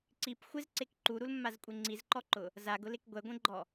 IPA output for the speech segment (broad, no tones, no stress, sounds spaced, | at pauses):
ǀ i p xʷ ɪ z ǀ e k ǃ u ɾ u l mː a z kʷʼ e ŋ͡ǀ i z ǃ ɔ ǃ ʊ | z a ɡ ʊ l e k ɡʷ ɛ ɡʷ ẽ ɡ͡ǃ ɔ